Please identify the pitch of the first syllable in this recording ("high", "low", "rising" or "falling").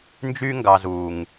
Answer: high